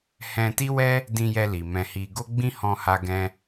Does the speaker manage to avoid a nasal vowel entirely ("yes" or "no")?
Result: no